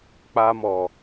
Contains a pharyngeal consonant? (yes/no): no